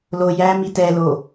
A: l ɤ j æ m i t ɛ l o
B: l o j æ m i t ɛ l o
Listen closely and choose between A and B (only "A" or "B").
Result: B